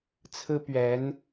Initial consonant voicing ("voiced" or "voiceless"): voiceless